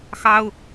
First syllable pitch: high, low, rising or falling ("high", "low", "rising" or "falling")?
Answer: high